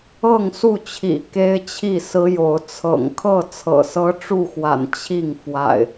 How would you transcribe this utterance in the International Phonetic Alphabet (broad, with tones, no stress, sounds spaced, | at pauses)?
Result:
ɤ˥˨ ŋ s u˥˨ t͡ɕʰ ḭ˨˩ k e˦ ɪ̯ t͡ɕʰ i˥˨ s ɹ̩˦ j o˨˦ ʊ̯ t͡sʰ ɤ̰˨˩ ŋ kʰ ɤ˥˨ t͡sʰ ɤ̰˨˩ s ɤ˦ ʈ͡ʂ u˥˨ x w a̰˨˩ n t͡ɕʰ i˥˨ ŋ f w a̰˨˩ ɪ̯